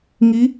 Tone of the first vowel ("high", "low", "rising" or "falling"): rising